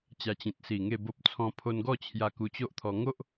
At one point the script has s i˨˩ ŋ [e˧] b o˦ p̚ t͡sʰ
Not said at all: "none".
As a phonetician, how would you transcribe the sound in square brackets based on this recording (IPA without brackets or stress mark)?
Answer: e˥˧